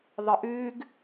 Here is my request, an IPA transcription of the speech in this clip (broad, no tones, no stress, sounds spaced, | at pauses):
ðˤ ɨ ʔ ʉː ɡ